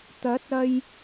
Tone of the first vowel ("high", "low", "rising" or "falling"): rising